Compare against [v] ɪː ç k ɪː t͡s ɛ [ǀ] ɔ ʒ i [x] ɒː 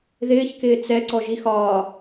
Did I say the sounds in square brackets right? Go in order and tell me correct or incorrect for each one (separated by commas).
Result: incorrect, correct, correct